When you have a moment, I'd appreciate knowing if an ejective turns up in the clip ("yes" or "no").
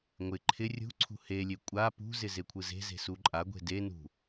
yes